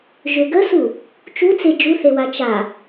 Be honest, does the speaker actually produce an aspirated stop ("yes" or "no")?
no